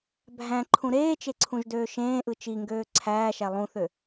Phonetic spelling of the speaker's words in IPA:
bʱ æ̃ ǃʰ ũ ɾ eː t͡ʃ e ǀʰ ũ ʒ d øː ʃ ẽː ʔ ɯ t͡ʃ i ŋ ɡ øː ǀʰ æː ʃ æ lˠ ũ θ ø

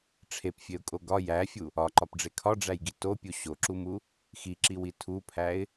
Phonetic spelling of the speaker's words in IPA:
ʈ͡ʂʰ e p fʲ e ʊ̯ kʼ o ɡ ɒ j æ fʲ u | ɒ ǃ ɒ p ɖ͡ʐ e kʰ ɒ ɖ͡ʐ æ j ɡ i t o pʲ u ɕ o ǁ u m u | x i ǁ i w i tʰ u pʰ æ ɪ̯

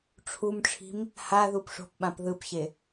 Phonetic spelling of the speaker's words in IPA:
ʈ͡ʂʰ u m ʈ͡ʂʰ i̤ m | h a ð u p ʂ o̤ p ɓ ã p ð ɯ p ɕ e

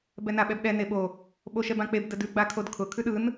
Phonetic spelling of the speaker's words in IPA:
b ɛ n a ɓ ɛ b ɗ ɛ n e ɓ o | ɓ o ʃ ɛ b ã k͡p e b d ə d ʉ ɡ͡b a kʰ o d kʰ ʊ kʰ ʉ ɗ ɯ n

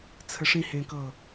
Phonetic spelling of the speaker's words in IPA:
t͡sʰ ə ʂ ĩ h ẽ k ɤ

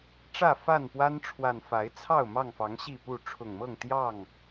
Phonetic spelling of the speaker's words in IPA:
ʈ͡ʂ ä˥˨ f a˥˨ n p w a˦ n ʈ͡ʂʰ w a˨˩ n f a˨˦ ɪ̯ t͡sʰ ɑ˥˨ ʊ̯ m ɑ˥˨ ŋ f ɑ˨˦ ŋ ɕ i˥˨ p u˥˨ ʈ͡ʂʰ ʊ˨˩ ŋ m ɤ˥˨ ŋ t̪ j ɑ˥˨ ŋ

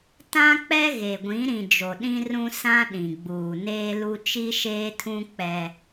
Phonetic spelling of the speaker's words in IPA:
t ã˦ k͡p ɛ˦ ɣ e˨ ɡʷ ĩ˨˦ ɾ ĩ˨ d͡ʒ o˨ ɗ ĩ˦ r ũ˦ s ã˦ ɗ ĩ˨ ɡ͡b uː˨ n eː˦ l u˦ t͡ʃ i˦ ʃ eː˦ tʰ ũ˦ k͡p ɛ˦

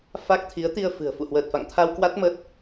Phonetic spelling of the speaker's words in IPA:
f a˦˥ k̚ t̪ʰ i˨˦ ə̯ t̪ i˧ ə̯ f ɨ̤˨˩ ə̯ f ṵ˧˨ h w əː˨˩ t̚ f a̰˧˨ ŋ t̪ʰ a˧ w k w a˦˥ t̚ m ə˦˥ t̚

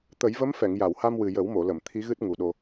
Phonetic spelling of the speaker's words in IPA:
t̪ ə˨˩˦ j v ə˧˥ m f ɛ˨˩˨ ŋ j a˨˩˨ w h a˧ m w ɨ˨˩ j ə˨˩˦ w m o˨˩˨ l ə˨˩˨ m t̪ʰ i˧˥ ɣ ɨ˦˥ t̚ ŋ u˨˩ ɗ o˧

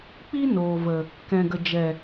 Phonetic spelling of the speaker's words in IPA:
k͡p i˦ n oː˨ v ə˨ | k ɛ̃˨ ɡ ə˨ d͡ʒ ɛ˨

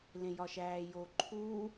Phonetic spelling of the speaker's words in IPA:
l ẽ j ɒ ʃ æː j o ǃʰ uː

